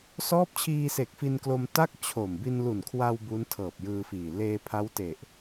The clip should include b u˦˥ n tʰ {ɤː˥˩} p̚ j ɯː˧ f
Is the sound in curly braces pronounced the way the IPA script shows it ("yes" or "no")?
no